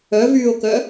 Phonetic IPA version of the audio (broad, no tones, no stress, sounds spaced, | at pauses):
œ v yː o̯ k œ